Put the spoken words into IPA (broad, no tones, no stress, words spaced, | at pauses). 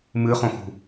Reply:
mɨχõxṳ